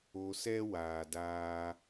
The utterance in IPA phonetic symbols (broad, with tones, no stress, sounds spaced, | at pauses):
o˨ s ɛ˦ w aː˩ d aː˨